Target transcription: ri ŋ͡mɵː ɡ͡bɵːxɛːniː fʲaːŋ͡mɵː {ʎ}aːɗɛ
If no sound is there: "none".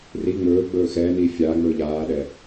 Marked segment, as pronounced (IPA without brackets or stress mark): ʎ